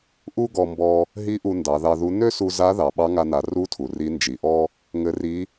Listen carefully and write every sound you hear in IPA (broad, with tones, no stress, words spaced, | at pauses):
ʔu˥ɡɔ˧mbɔ˧ | ɦi˧˥ ʔu˧ndɑ˩˧ðɑ˧ðu˧˥ nø˥su˧za˧˥ ðɑ˩ɓɑ˧˥ŋa˧na˩˧ ru˧˥tʰu˩ ri˧˥nd͡ʒi˩˧ʔɔ˥ | ŋɘ˧˥ri˧˥